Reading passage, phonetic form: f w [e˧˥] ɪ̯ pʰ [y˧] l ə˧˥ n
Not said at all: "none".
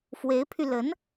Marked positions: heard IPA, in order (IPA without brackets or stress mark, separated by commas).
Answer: e˧˥, y˧